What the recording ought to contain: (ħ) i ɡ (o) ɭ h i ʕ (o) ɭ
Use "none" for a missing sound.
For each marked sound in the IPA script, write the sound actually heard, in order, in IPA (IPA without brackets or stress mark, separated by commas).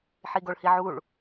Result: ħ, o, u